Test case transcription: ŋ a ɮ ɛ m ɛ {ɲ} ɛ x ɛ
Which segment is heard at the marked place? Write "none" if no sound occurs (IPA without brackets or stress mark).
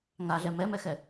m